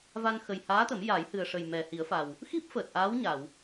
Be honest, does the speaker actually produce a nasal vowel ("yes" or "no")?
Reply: no